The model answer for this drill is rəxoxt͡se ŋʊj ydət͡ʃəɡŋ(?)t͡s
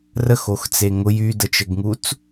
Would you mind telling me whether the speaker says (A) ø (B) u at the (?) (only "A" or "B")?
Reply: B